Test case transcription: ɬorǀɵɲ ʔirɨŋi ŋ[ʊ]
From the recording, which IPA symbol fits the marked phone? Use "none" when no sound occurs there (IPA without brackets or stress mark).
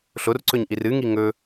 ɵ